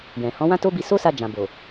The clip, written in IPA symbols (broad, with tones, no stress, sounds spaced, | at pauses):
j ɛ̃˨ h ɔ̃˨˦ w ã˦ t o˦ b i˧ s o˦ s a˧ d͡ʒ ã˨ b o˨